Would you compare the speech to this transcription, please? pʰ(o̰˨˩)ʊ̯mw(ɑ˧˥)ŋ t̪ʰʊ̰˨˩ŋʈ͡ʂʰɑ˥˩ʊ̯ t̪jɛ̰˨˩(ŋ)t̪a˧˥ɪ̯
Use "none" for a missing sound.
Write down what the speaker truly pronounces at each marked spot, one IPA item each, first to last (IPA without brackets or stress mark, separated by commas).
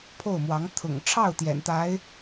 o˥˩, ɑ˧˥, n